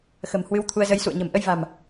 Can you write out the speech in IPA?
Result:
xə̤˨˩m hwɨ˧wt̪ʰu˧ə̯zə˧j sṵ˧˨ə̯ɲə̤˨˩m ʔə˧jva̤˨˩m

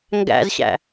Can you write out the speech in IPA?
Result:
ŋɡæ̰zɕæ̰

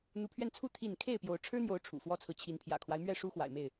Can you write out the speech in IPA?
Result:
n̪u˨˦pʰɥɛ˧nt͡sʰu˦ t̪ʰi˥˨n kʰe˥˨ɪ̯pjo˨˦ʊ̯ ʈ͡ʂʰɻ̩˦n̪jo˨˦ʊ̯ ʈ͡ʂʰṵ˨˩fwɔ˦t͡sʰɹ̩˨ t͡ɕʰi˨˦npʰjä̰˨˩kʰwa˦ɪ̯ mɥɛ˥˨ʂu˦ xwa̰˨˩ɪ̯me˥˨ɪ̯

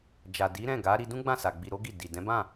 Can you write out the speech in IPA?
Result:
d͡ʒa˨di˨˦ɾɛ̃˦˨ɡa˨˦ ɾi˧dũ˦ɡ͡bã˦˨sa˨ ɡ͡bi˧ɾo˦ɡi˦˨ di˨ dɛ̃˨˦bã˦˨

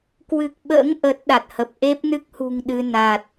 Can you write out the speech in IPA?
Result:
kwɨ˨˩k̚ɓə̰ː˧˥ŋ ʔəː˦˥t̚ɗa˨˩t̚hə˨˩p̚ ʔe˦˥p̚nɨ˦˥k̚hṳ˨˩ŋ ɗɨ˧na˨˩t̚

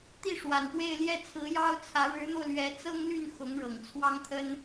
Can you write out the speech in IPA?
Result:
t̪i˥˩ʂwa˨˩npwe˥˧ɪ̯ ljɛ˥˩t͡sʰɹ̩˧˥jɑ˥ʊ̯t͡sʰä˧˥ ɻɻ̩˧˥n̪o˧ʊ̯ lɥɛ˧˥t͡sɤ˥ŋly˥˩n xʊ˧˥ŋɻɤ˨˩ŋt͡sʰwɑ˥ŋt̪ʰə˥n

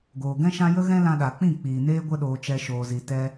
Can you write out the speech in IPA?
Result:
ɡoː˨ɡɛ̃˦ʃã˦ jə˦ ɣɛ̃˦lã˧ɗa˨k͡pĩ˦˨ k͡piː˨neː˦ ɡʷə˧ɗoː˨t͡ʃɛ˨ ʃoː˨zi˨ tɛ˦

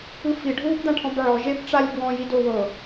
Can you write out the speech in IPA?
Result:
ɯfiɖʱuːbd̪ã ʈʰɔ̃bʕɔ ʒebʈ͡ʂalʲ bwɔ̃ jidowɤ

